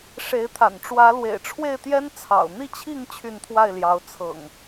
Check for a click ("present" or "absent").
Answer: absent